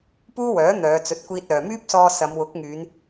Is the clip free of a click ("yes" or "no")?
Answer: yes